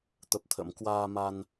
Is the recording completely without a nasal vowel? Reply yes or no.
yes